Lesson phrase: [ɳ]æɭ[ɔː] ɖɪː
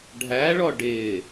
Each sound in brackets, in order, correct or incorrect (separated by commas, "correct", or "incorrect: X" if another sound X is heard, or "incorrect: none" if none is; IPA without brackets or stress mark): incorrect: ɖʱ, incorrect: ɔ